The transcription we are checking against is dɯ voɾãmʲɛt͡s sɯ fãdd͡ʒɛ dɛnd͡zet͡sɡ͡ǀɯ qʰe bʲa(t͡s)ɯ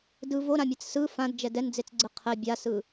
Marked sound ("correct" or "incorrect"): incorrect